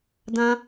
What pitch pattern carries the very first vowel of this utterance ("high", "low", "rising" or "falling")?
high